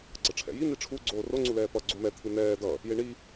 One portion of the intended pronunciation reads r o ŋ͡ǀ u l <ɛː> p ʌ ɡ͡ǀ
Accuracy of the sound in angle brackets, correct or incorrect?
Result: correct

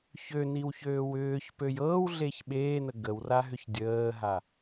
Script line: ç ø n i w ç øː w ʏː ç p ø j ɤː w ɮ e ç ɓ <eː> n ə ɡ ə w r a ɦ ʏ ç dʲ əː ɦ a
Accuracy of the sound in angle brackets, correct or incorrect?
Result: correct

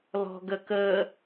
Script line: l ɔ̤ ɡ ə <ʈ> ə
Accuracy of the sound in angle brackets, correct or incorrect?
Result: incorrect: k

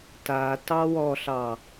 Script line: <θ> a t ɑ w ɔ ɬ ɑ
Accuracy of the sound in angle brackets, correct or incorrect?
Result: incorrect: t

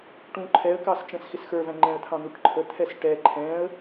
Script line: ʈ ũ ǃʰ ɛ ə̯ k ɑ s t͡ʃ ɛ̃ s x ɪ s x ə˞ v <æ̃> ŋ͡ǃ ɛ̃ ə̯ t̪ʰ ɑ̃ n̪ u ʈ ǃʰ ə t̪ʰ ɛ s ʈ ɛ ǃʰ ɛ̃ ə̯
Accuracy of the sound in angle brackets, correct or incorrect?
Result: correct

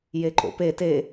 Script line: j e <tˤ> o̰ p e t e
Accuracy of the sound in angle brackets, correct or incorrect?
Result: incorrect: ǃ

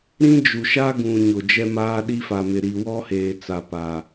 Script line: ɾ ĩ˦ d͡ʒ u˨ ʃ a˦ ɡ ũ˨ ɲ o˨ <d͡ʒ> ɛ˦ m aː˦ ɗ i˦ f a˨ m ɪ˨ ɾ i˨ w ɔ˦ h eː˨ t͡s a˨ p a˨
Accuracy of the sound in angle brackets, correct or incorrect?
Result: correct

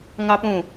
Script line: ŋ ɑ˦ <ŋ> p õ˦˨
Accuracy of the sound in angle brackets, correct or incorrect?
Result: incorrect: none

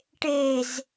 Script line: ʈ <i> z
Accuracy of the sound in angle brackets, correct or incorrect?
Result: incorrect: e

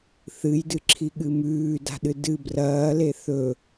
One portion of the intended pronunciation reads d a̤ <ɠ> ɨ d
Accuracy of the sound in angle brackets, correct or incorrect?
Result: incorrect: ɗ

